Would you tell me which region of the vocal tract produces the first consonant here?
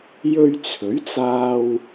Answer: palate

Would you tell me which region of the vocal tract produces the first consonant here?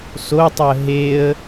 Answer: tongue tip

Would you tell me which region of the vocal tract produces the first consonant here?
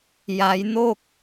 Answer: palate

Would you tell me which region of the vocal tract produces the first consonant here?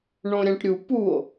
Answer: retroflex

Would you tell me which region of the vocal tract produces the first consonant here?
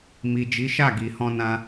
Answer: lips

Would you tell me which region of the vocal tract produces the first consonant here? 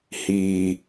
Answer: throat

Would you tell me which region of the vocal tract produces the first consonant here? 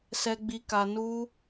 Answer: tongue tip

